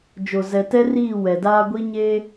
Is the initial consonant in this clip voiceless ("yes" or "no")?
no